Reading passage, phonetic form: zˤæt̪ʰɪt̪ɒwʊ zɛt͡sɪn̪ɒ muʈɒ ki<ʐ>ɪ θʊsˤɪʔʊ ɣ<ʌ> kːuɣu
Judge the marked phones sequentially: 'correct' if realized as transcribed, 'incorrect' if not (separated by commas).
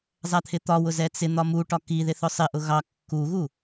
incorrect, incorrect